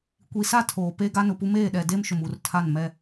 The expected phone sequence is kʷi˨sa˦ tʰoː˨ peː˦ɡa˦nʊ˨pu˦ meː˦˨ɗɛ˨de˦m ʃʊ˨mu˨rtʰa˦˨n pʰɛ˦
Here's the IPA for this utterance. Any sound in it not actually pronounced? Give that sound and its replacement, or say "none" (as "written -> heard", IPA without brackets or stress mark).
pʰ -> m